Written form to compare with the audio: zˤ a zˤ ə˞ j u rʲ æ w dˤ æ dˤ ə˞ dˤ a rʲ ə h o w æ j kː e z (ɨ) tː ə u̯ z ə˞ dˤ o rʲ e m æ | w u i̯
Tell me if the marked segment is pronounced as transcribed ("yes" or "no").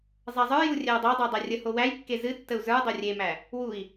yes